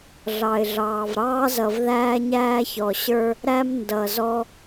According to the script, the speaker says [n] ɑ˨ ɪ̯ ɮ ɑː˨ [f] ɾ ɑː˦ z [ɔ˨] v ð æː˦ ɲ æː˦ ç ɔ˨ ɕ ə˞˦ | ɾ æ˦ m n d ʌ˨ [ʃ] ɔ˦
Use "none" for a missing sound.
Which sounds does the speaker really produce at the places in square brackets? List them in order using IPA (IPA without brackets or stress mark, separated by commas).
ɮ, v, ʌ˨, z